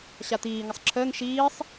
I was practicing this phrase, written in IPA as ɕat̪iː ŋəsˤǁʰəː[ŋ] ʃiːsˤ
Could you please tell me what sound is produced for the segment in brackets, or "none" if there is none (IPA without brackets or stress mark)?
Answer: ŋ